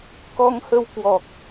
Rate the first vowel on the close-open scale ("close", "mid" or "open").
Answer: mid